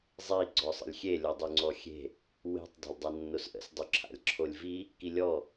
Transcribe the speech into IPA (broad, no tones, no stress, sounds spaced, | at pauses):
zˤ i ɡ͡ǀ ɔ sˤ ə̰ lʲ xʲ e lʲ ɔ dˤ y ŋ͡ǀ ɔ xʲ e̤ | w e̤ tˤ dˤ e̤ lʲ dˤ a nː o s ʔ ə̰ s dˤ y ǁʰ a̰ lʲ ǁʰ o lʲ v i | k i lʲ ɔ